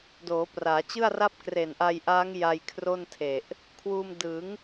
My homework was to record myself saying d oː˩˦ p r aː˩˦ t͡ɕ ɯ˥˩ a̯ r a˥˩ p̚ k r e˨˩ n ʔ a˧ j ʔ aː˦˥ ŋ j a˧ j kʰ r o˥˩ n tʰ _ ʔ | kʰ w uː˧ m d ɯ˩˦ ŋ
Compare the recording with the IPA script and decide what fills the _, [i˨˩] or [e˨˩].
e˨˩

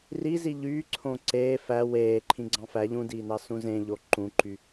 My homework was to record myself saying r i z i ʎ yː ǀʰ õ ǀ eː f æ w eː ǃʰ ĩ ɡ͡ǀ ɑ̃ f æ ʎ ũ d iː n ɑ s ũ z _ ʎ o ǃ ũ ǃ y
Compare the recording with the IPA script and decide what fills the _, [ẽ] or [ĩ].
ẽ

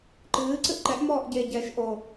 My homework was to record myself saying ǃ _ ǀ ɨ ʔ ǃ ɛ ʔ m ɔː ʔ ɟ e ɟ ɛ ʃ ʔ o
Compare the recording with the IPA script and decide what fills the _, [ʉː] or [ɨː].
ɨː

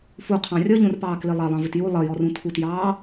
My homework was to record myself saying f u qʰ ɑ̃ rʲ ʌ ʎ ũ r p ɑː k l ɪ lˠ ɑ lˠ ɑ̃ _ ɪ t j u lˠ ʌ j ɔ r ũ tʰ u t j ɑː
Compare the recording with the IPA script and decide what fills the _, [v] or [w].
v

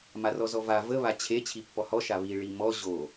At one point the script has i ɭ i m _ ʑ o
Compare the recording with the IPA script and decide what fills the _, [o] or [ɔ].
ɔ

